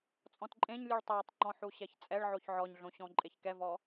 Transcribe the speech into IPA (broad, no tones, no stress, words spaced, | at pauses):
t͡sʼɔ̃tǃʼẽɲlʲuɭ tˤatˤŋ͡ǃɔ̃ ħuɕɛçt͡sʼɛɭʕoç ʕɔɲɮõ ɕɔ̃ǃʼeçkɛvɔ